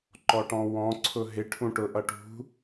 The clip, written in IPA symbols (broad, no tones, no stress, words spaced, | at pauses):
ǃɔʈɔ̃wɔ̃ ǀʰʊɦɪ ʈʰũʈʊʔʌʈṳ